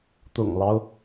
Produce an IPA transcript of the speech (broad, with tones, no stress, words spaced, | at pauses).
t̪ʊ̰˨˩ŋlɑ˦ʊ̯